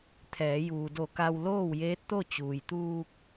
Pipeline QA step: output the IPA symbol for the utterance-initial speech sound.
t̪ʰ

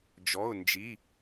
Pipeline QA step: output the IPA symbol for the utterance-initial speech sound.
d͡ʒ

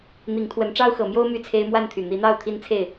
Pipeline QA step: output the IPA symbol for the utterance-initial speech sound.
n̪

